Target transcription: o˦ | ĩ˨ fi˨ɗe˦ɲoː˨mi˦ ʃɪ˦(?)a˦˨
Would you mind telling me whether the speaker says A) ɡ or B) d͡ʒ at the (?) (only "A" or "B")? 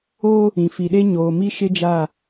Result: B